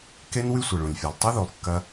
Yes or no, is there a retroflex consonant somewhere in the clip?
yes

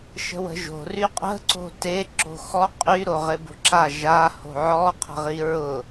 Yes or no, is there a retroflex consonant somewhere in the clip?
no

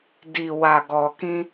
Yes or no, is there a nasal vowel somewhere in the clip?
yes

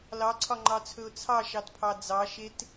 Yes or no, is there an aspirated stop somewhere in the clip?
yes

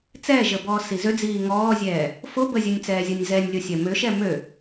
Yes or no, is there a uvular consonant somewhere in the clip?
no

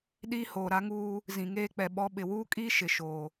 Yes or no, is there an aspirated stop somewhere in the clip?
no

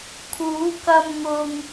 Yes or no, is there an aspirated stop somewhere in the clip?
yes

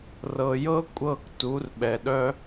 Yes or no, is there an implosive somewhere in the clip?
yes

